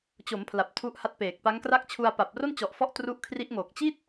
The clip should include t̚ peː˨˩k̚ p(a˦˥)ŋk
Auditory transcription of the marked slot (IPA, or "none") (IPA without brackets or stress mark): a˦˥